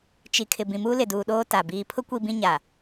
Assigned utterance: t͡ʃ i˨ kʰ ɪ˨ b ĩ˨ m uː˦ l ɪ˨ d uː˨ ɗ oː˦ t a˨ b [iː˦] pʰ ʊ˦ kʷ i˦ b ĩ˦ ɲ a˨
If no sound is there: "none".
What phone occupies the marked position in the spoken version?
iː˨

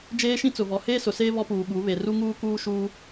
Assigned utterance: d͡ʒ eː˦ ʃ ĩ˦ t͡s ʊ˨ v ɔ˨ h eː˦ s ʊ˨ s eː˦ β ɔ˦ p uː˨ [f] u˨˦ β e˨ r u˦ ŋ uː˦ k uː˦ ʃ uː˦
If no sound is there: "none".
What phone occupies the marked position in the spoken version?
ɓ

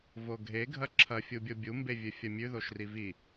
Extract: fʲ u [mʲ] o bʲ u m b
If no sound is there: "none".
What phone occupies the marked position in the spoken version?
bʲ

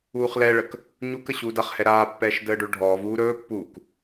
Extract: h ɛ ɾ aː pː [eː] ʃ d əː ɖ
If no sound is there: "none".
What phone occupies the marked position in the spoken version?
ɛː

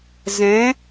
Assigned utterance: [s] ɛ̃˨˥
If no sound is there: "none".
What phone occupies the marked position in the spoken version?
z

